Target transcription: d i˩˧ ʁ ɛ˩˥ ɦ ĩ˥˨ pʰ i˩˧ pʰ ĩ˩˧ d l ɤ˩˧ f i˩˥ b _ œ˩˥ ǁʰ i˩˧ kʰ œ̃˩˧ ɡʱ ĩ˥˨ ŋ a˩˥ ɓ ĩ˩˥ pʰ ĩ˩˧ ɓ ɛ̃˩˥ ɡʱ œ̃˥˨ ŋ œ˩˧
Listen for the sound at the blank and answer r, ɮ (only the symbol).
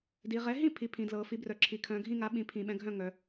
r